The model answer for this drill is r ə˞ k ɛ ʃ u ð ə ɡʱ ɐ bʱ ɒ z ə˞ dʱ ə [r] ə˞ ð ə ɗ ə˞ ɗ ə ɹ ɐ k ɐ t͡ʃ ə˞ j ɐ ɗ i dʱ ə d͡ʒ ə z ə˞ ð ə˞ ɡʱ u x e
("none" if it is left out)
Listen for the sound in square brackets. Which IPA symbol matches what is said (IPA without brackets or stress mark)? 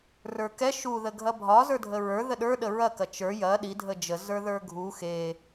ɹ